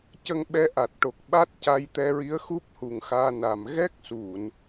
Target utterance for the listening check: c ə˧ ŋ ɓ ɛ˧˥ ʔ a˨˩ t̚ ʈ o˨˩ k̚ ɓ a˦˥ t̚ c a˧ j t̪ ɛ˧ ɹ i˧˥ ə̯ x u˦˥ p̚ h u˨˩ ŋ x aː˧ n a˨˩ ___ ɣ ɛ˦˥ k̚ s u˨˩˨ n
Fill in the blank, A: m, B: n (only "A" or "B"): A